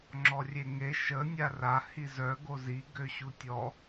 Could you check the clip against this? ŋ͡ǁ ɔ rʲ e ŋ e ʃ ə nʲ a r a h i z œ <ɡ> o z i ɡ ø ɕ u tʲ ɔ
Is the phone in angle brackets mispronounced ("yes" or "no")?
no